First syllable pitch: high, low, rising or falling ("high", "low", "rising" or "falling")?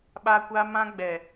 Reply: high